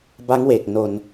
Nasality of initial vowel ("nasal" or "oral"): oral